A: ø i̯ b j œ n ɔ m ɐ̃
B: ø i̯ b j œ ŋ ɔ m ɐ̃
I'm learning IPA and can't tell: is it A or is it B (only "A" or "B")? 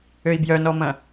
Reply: A